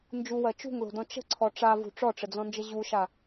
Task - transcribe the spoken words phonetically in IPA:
n d͡ʒ u w ɜ t͡ʃ ṳ ŋ l o̤ d ɔ̃ t͡ʃ ə̤ ǀʰ ɔ ʈ͡ʂ a v ṳ ʈ͡ʂ ɔ ʈ͡ʂ ə d͡z ɔ̃ n d͡ʒ ə ʑ u ʃ a

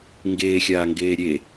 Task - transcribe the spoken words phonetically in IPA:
ŋ ɡ eː xʲ aː ŋ ɡ eː ɾʲ e

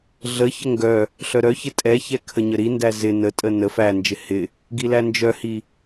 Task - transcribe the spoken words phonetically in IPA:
ɮ ə ç ə ŋ ɡ œ | ɬ œ ɾ œ ç ɪ tʼ ɛ ç ɛ kʰ ə ɲ ə ɾ i n d æ z ɪ n ə tʼ ə n ə f æ n d͡ʒ ɪ h ɪ | ɡ i l æ n d͡ʒ œ h i

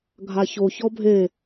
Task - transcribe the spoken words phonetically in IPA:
ɡʱ a ç o ç ɔ bʱ e

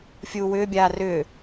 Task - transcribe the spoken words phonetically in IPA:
fʲ uː w ʏː bʲ aː r ʏː

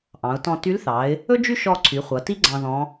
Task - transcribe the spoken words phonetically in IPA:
ʔ ɑ̃˩˧ ʊ̯ t ɔ̃˧ t y˧˥ l θ ɑ˩˧ ɪ̯ | ɵ˥ d͡ʒ y˥ ʃ ɔ˧ ǀʰ y˩˧ χʷ ʌ˩˧ t i˥ ɡ͡ǀ ɑ̃˧ ð ɔ̃˧˥

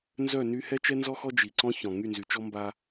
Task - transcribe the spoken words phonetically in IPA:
n z œ˦˨ n y˦ h ɛ˦ t͡ʃ ɛ˦ n z ɔ˦ x ɔ˦ d͡ʒ i˨ ǀ ɔ̃˦ ç ɔ̃˨ ŋ y˦˨ n z y˨ t͡ʃ ɔ˦ m b a˦

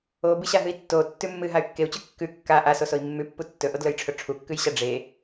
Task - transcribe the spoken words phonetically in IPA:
o b ɨ ɕ a ɦ ɨ i̯ tː o tː ʉ mː ɨ ɦ a y̯ kː e u̯ t͡ɕ ʉ kː ʉ kː a ʔ a s o s o i̯ mː ʉ pː u tː ɵ ʔ o d l ɵ j ʈ͡ʂʰ ɵ ʈ͡ʂʰ u kː ʉ j ɕ a ɖ͡ʐ e

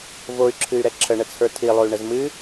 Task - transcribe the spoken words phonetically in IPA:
v o y̯ ǁʰ ɨ y̯ ɾ ɛ ǁʰ ə ɳ ə t͡sʰ ə˞ tʰ i lˠ o y̯ ɳ ə z m ɨ

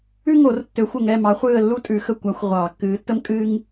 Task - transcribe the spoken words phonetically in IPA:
ʉ˥ ŋ o˨˩˦ r tː ø˨˩˦ xʷ ə˨˩ ŋ ɛ˦˨ m ɑ˨˥ χʷ ɨː˦˨ ə̯ lː u˥ tʼ ʉ˨˩˦ x ə˦˨ kʷ a˨˥ xʷ ʁʷ ɑː˨˩˦ kː ɨː˨˥ tː ə˥ m kʼ ɨː˥ ŋ

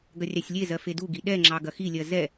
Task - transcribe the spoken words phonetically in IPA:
ɡ ɐ rʲ ɑ sʲ lʲ e z ɜ f e d u ɡ i ɗ ɛ ŋ͡ǁ ɑ ɡ ɐ x i lʲ ɜ z ɛ

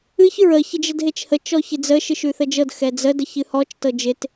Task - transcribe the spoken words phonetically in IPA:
ɨ ç ɹ ə ç ɪ d͡ʒ ə d ɦ e t͡ʃ h ə t͡ʃ ɔ ç ɪ d͡z ə ʃ ɨ ʃ ʉ θ ə d͡ʒ ɤ d x ɛ d͡z ə d ə ç ɨ h ɔ t͡ʃ t ɤ d͡ʒ ɪ t

